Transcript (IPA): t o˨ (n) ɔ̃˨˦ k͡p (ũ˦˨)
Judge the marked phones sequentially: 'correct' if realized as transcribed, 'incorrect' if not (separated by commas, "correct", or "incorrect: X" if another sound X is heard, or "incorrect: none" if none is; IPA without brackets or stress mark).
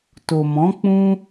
incorrect: m, incorrect: ũ˦